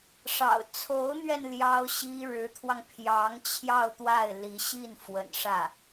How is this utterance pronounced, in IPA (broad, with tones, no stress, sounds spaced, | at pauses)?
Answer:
ʂ ɑ̰˨˩ ʊ̯ t͡sʰ o˧˥ ʊ̯ n̪ ɥ ɛ˧ n l j ɑ˥ ʊ̯ ɕ i˥ ɻ ɻ̩˧˥ t̪ʰ w ɑ˧ ŋ pʰ j ɑ˧˥ ŋ t͡ɕʰ j ɑ˥˧ ʊ̯ t̪ w a˥˩ ɪ̯ l i˧˥ ɕ i˥˩ n f w ə̰˨˩ n ʂ ä˥˩